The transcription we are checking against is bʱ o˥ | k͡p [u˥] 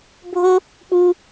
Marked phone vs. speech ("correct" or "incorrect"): correct